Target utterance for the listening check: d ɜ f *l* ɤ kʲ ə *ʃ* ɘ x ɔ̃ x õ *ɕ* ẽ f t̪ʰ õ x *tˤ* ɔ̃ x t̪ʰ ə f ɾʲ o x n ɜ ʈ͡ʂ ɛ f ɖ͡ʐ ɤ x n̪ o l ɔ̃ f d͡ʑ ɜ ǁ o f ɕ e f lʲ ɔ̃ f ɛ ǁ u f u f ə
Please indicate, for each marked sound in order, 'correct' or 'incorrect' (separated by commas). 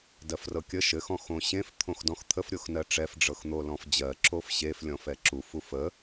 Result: incorrect, correct, correct, incorrect